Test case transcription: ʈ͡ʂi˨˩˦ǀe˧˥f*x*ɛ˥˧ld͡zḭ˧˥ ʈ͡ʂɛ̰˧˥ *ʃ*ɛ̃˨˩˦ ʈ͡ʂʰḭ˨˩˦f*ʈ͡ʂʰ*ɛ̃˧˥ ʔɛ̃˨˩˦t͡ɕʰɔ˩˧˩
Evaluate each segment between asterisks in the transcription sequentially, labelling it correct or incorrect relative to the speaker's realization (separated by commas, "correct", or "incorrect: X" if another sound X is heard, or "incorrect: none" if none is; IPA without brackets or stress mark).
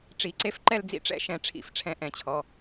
incorrect: ǃ, correct, correct